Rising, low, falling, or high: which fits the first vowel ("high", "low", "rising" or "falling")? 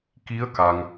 rising